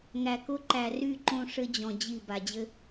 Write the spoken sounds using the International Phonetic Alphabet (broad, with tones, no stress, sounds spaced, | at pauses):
ŋ æ˨ k ʊ˦ ǃ æ˨ r y˦˨ ǃ õ˦ ʂ ɘ˦ d͡ʑ ɔ̃˨ d͡ʑ i˦˨ b a˨ d͡ʑ ɘ˦